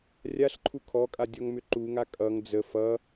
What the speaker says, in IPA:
rʲaɬǃʰu kʰɔkʼa dʲɔŋmʏǃuŋa kʼʌŋ d͡zə fʌ

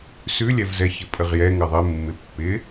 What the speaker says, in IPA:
sʉlʲɛvzɛçɪ pʼəʁjɛ ŋɘðˤɪ mːɪpːɪ

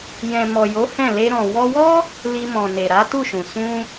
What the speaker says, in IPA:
jɛ̃˨mɔ˨jo˨˦ hɛ̃˦˨ le˧ɾɔ̃˨ wɔ˧wɔ˦ | li˧mɔ̃˨ ne˨ɾa˨˦tu˦˨ʃũ˨ sũ˧

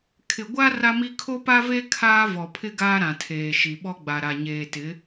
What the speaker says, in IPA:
kʰɪ˨ɡʷa˦ ra˦mi˦ kʰo˦pa˦ve˦ kʰaː˦ vɔ˨pʰɪ˦ ɡaː˦ɾã˨tʰeː˨ ʃi˨ɓɔ˦ɡ͡ba˨ ɾa˨ɲeː˨tɪ˨˦

